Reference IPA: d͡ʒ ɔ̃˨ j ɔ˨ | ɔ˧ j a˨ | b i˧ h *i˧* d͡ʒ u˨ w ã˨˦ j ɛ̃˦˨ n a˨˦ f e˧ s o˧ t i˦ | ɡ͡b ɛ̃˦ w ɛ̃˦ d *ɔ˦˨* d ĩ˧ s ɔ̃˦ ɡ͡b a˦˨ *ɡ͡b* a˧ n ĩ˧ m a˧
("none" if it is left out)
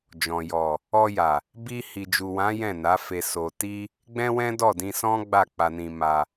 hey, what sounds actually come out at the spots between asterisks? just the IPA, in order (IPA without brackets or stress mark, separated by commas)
i˨, ɔ˦˨, k͡p